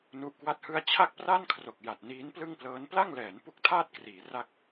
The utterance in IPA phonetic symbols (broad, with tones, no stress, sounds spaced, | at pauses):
n u˦˥ ʔ k w a˥˩ t̚ h ɯ˥˩ a̯ t͡ɕʰ a˥˩ k̚ p r a˥˩ n kʰ r o˨˩ k̚ j a˨˩ t̚ n iː˦˥ n p l ɯ˥˩ ŋ p l ɤː˦˥ n p l a˥˩ ŋ l ɛː˩˦ n p u˦˥ k̚ tʰ aː˥˩ t̚ k r iː˩˦ r a˥˩ k̚